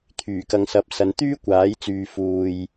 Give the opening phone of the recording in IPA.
t̪ʰ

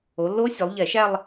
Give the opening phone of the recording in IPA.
o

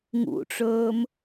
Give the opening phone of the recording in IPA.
ŋ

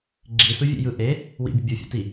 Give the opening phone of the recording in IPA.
ɡ͡ǁ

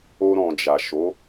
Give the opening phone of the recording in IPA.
o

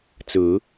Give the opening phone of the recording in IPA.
t͡s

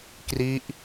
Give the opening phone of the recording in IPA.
k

